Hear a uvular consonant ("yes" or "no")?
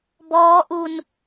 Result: no